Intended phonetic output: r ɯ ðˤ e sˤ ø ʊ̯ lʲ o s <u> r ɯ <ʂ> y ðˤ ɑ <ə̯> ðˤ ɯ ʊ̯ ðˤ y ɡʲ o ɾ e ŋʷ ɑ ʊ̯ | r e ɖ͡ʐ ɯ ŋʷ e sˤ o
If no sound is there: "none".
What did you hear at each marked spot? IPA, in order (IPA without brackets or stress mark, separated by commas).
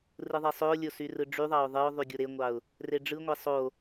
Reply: y, ɖ͡ʐ, ʊ̯